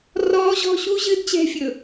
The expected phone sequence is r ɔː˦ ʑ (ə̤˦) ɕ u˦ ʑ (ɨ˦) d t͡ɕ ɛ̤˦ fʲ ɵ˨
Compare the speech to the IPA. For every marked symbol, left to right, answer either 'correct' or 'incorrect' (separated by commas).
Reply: incorrect, correct